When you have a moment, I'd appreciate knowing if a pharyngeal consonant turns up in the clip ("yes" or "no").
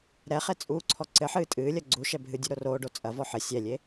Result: yes